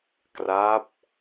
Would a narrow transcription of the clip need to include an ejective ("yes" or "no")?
no